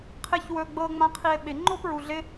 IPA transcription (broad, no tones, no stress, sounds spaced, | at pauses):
qʰ ɪ ç w ɵ ɡ͡b ɤ ŋ͡m ã qʰ i e̯ ɓ ɪ ŋ͡ǃ o p ɹ u ɮ ɪ